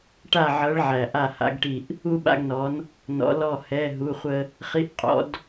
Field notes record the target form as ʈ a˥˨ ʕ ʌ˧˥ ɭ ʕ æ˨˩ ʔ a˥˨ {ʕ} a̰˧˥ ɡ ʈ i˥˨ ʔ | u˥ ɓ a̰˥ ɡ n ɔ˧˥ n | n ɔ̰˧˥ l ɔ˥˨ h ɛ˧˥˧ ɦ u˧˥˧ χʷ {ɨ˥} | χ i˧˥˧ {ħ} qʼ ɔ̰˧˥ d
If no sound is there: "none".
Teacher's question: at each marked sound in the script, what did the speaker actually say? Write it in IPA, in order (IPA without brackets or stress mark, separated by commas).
h, ə˥, ʔ